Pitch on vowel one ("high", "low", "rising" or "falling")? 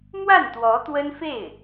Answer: falling